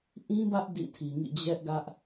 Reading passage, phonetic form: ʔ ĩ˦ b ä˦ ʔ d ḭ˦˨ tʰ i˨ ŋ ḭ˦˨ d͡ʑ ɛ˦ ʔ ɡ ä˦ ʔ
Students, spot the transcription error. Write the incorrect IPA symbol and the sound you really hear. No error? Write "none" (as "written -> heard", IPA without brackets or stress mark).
none